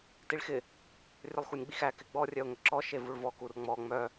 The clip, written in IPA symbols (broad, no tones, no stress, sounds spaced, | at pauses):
t i ɭ x ɪ | rʲ ə lˠ x u nʲ ɡ͡b i x æ k ɪ ɡ͡b ɔ rʲ œ ʊ̯ ŋ ə ǁ ɔ ʃ e v u ɭ v ɔ k u r ŋ͡m ɔ ŋ͡m œ